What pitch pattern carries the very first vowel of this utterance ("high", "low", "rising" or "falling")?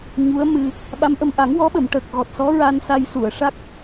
rising